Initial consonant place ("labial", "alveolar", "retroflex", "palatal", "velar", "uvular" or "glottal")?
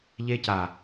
palatal